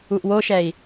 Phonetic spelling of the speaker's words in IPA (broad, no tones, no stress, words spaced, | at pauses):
uʔwoʃɛi̯